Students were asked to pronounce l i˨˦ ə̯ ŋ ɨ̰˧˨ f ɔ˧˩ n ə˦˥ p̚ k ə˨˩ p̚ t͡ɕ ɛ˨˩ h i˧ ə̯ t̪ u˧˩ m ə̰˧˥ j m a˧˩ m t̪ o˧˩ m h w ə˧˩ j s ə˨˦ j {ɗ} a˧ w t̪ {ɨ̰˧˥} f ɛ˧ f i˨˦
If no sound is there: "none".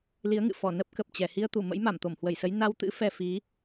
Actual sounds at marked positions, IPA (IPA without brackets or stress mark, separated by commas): n, ɨ̰˧˥